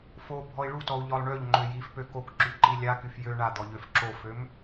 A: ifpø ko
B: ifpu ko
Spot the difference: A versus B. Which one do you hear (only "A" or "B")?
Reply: A